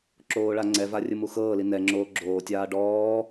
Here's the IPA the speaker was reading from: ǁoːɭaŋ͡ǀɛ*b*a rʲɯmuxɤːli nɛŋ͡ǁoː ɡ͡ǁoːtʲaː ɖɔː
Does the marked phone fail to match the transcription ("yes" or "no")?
yes